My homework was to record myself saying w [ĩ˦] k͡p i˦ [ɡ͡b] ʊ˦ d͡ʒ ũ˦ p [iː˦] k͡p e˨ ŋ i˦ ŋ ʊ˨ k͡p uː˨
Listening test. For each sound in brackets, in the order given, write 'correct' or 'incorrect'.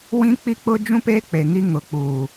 correct, incorrect: k͡p, incorrect: eː˦

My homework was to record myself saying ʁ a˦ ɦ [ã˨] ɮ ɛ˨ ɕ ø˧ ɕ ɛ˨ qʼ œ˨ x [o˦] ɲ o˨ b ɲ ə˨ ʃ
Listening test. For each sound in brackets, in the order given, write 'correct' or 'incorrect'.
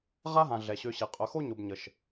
correct, correct

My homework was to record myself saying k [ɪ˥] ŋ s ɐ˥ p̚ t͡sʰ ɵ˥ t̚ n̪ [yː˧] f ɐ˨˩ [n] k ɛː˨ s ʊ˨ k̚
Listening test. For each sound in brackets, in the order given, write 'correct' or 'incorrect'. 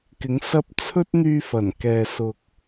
incorrect: ɪ˨˥, correct, correct

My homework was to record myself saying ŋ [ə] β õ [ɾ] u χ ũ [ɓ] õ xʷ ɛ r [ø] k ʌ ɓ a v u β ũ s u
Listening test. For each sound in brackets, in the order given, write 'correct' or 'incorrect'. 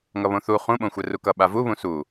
incorrect: ʌ, incorrect: θ, correct, incorrect: u

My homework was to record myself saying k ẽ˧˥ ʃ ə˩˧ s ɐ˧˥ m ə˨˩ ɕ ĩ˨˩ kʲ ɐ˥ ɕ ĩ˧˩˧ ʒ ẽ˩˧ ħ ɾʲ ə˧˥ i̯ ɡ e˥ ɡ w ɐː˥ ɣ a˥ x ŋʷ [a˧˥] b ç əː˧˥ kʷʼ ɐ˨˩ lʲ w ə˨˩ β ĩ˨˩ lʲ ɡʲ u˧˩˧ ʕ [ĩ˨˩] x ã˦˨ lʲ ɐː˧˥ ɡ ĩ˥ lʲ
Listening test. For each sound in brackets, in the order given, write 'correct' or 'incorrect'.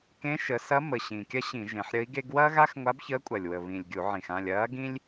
correct, correct

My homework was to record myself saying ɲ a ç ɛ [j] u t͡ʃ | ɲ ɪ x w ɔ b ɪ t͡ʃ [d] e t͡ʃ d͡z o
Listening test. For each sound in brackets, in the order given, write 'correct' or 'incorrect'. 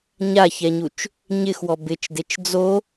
incorrect: ɲ, correct

